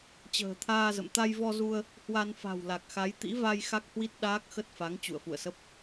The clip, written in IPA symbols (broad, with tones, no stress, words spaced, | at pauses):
t͡ɕə̤ː˨˩t̪ʰaː˧zə̰˧˨m t̪a˧jvɔ˧zu˧ə̯ | hwa˧n fa̤˨˩wla˨˩k̚xa˨˦j t̪ḭ˧˥va˧j xa˦˥k̚hwi˦˥t̚ ɗaː˦˥k̚xə˦˥t̚fa˨˦ŋ t͡ɕṵ˧˨ə̯fṵ˧˨ə̯sə˦˥p̚